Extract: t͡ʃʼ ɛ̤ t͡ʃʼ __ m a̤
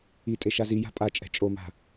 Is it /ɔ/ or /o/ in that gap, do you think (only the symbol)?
o